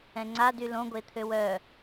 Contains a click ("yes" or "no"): yes